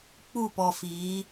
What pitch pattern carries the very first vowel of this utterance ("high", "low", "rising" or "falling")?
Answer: falling